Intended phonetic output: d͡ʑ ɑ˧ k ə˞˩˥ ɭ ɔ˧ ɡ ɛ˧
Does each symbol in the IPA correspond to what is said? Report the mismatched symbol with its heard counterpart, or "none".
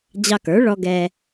none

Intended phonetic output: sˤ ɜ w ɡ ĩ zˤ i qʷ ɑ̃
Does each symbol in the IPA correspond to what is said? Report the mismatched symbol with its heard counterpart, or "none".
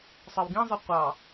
ɑ̃ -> ɑ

